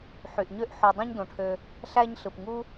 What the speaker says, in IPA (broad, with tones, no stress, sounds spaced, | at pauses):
ħ y˩ ʔ ɲ ø˦ ʔ ħ o˨ dˤ ẽ˦ ɲ d õ˩ ʈʰ ø˨ | ɬ æ˦ ɲ ɬ ɯ˩ p ŋ u˥